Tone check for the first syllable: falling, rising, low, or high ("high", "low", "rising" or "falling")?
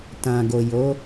low